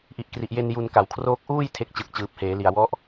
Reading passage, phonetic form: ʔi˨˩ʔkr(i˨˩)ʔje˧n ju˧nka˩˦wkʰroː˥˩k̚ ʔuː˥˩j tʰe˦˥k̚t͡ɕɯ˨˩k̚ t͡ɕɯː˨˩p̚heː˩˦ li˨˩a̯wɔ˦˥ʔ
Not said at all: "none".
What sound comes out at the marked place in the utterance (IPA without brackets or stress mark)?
i˨˩